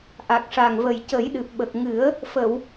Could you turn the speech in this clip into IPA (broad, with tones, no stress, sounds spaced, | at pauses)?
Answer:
ʔ a˨˩ k̚ ʂ a˨˩ ŋ v ə˨˩ j c ə˨˩˦ j ɗ ɨ˨˩ p̚ ɓ ə˨˩ k̚ ŋ ɨ˨˩˦ ə̯ | f ə˨˩˨ w